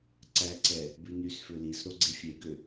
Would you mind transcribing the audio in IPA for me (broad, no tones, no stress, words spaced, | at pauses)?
ǀæǀɛ | bʉnysfø lis ɾoɡ͡ǀefʲeɡø